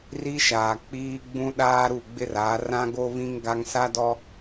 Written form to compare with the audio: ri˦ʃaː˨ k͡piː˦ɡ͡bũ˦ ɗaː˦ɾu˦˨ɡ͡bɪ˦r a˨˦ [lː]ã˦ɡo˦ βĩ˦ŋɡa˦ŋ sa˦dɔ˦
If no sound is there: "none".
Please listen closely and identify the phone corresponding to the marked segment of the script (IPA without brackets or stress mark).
r